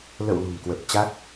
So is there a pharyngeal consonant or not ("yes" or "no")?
no